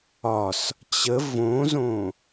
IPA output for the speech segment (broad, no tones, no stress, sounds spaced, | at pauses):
ɒ s | t͡ɕ ə v õ z õ